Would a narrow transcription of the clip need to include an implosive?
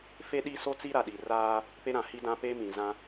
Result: yes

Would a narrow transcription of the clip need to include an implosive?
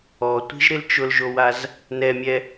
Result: no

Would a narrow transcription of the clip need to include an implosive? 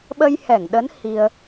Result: yes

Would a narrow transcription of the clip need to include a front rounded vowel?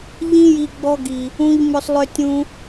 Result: yes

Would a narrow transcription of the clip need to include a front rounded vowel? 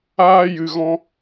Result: no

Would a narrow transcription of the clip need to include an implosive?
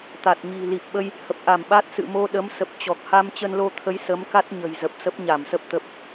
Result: yes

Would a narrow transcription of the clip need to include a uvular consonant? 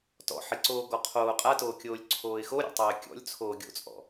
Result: yes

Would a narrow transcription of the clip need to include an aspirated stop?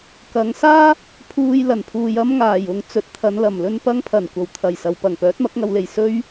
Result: yes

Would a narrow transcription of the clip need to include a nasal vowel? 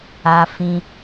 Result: yes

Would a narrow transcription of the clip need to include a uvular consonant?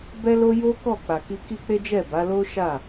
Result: no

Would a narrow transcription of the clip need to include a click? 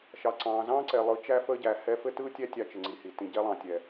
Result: yes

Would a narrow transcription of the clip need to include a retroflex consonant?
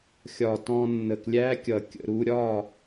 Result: no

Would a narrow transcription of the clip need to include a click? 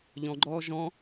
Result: yes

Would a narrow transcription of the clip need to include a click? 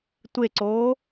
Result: yes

